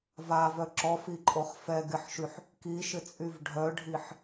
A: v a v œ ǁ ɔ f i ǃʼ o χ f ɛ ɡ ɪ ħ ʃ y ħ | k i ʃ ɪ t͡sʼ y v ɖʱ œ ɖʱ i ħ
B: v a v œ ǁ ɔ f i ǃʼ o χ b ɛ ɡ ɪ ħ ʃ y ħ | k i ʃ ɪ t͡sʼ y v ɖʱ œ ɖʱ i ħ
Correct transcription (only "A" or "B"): A